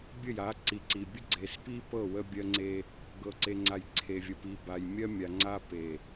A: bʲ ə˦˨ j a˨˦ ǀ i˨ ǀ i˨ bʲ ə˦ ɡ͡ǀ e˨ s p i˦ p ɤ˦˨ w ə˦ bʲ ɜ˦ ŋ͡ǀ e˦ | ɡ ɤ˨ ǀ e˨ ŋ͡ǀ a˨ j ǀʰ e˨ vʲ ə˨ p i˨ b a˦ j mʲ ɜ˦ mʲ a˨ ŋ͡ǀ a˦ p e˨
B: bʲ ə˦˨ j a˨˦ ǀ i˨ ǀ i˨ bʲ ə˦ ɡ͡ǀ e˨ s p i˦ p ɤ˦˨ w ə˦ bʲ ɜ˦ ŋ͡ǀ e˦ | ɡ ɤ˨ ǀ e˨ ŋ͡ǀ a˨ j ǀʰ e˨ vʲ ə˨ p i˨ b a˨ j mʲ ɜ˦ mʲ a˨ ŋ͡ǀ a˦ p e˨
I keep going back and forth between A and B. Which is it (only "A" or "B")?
B